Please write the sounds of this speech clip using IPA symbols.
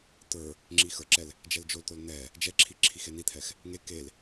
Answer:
t̪ ə˞ | ŋ͡ǁ i x ə˞ ǁ ɛ l | d͡ʒ ɛ l d͡ʒ o l t̪ o l n̪ ɛ | d͡ʒ ɛ ǁʰ i ǁʰ i x e n̪ i t̪ʰ ɛ x | ŋ e k e l

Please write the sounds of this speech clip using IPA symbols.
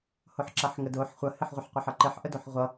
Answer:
h o ħ ǁ ɐ ħ ŋ ə d o ħ χʷ ɐ h ɪ ħ ʁʷ ə ħ qʷ ə ħ ʌ ǃ ɪ ħ ʔ ə d o ħ ʁʷ ʌ

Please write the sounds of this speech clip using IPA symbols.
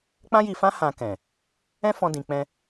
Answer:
k͡p ã˦ j i˧ f ã˦ h ã˧ k ɛ̃˨ | ɛ̃˦ f ɔ̃˧ d ĩ˨ k͡p ɛ̃˧

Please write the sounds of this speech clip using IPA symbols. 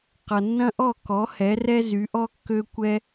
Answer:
q ʌ˨ nː ɐ̃˦ ʔ ɔ˦˨ k ɔ˨˦ h ɛ˨˦ r ɛ˦ z y˨˦ ʔ ɔ˦ kː ø˦ kʷ ɛ˦

